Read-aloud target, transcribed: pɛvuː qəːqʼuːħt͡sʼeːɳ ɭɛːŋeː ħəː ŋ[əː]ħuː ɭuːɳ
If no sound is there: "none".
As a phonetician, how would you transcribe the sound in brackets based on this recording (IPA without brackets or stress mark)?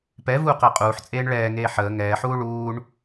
ɛː